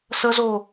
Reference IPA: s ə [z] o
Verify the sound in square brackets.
correct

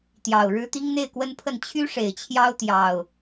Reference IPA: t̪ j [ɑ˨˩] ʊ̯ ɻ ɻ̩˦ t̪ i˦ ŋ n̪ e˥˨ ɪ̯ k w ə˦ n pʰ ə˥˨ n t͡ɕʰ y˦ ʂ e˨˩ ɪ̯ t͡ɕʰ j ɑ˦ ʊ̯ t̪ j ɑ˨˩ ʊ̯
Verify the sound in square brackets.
correct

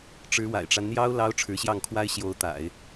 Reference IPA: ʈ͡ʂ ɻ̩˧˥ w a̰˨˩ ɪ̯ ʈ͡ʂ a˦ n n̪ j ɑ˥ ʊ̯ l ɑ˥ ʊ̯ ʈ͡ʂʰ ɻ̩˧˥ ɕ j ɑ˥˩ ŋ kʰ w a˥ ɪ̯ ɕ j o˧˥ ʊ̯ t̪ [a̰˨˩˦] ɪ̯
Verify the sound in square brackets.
correct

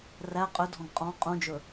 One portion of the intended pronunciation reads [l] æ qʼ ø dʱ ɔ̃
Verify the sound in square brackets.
incorrect: r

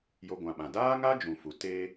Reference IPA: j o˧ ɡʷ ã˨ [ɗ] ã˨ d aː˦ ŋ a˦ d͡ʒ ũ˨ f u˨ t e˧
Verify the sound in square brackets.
incorrect: ɓ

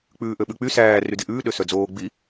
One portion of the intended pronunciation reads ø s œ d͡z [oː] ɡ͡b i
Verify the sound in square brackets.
correct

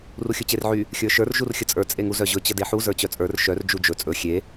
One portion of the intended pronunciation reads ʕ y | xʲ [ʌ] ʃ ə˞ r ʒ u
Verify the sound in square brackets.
incorrect: ə˞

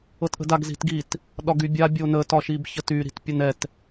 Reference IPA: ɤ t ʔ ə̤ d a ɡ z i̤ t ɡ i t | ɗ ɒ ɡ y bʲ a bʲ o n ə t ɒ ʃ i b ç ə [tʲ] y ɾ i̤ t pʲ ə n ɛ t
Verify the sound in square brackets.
incorrect: t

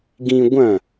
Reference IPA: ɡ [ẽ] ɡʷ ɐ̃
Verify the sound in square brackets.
incorrect: ĩ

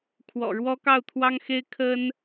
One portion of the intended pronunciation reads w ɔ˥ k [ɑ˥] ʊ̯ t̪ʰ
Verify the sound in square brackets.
incorrect: ɑ˥˩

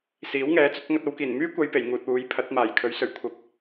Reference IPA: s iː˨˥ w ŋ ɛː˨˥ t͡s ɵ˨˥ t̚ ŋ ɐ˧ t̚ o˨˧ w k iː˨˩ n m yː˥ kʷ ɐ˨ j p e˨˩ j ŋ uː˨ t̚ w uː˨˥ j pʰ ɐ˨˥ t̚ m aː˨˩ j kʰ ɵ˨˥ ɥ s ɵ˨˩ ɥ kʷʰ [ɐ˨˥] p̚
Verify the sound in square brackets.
incorrect: ɐ˨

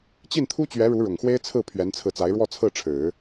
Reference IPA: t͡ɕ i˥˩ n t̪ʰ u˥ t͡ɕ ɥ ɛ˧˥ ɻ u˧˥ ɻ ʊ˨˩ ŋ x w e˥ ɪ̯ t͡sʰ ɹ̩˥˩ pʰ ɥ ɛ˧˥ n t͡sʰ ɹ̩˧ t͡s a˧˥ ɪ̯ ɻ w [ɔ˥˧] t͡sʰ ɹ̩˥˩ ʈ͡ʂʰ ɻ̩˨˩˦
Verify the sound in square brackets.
correct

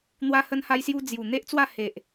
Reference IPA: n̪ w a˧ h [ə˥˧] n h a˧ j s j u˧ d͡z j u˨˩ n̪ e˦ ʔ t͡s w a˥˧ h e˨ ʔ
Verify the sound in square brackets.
incorrect: ə˧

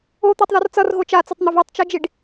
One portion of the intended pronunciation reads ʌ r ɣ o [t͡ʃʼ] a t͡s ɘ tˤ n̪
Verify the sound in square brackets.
incorrect: t͡ʃ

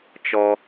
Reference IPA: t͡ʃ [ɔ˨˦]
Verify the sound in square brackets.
incorrect: ɔ˦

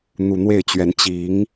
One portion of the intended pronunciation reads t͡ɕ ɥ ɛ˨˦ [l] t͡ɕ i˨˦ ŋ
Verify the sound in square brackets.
incorrect: n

